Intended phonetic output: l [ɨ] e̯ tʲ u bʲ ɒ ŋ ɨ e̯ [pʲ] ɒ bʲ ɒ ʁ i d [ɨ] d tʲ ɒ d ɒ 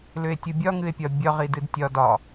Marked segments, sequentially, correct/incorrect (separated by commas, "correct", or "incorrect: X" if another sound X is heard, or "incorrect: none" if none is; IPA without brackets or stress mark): incorrect: ʏ, correct, correct